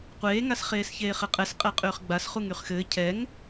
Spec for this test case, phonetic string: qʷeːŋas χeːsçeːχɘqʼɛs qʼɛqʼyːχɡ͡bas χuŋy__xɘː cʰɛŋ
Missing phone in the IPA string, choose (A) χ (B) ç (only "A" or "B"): A